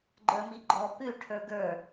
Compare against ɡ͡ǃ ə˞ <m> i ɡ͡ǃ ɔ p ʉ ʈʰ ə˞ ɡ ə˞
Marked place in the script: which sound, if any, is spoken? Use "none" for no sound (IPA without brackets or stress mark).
m